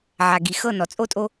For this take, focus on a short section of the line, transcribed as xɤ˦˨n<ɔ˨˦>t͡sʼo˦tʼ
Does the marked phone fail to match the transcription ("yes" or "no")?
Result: yes